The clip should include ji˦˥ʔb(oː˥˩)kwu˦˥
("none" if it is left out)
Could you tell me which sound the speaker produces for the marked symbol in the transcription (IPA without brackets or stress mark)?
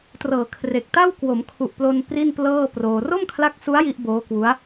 oː˦˥